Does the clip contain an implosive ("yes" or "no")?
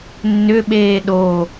yes